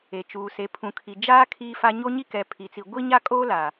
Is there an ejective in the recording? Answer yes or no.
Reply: yes